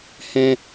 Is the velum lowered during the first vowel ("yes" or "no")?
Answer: yes